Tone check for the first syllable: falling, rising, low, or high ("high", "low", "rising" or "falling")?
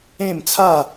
falling